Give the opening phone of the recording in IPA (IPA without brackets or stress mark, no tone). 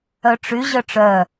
œ